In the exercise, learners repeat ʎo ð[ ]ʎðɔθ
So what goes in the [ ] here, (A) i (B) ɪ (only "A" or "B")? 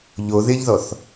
B